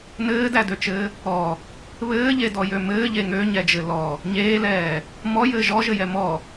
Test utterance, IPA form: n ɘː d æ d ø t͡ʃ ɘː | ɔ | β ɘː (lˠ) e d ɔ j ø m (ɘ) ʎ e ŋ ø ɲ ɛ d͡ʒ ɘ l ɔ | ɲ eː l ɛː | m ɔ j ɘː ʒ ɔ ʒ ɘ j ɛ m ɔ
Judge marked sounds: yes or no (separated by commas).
no, no